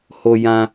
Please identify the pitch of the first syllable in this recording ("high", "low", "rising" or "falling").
high